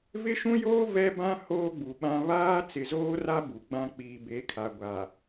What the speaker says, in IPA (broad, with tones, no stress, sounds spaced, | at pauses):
v ɪ˦ ʃ ũ˦ j oː˦ v ɛ˦ b ã˦ h oː˦ ɡ͡b u˨ ɓ ã˦ β aː˦ t͡s ɪ˨ z oː˦ r a˦ b u˨ ɡ͡b ã˦ k͡p iː˨ b e˨˦ kʰ a˨ ɡʷ a˨